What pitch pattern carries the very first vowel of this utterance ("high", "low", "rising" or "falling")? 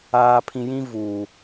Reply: low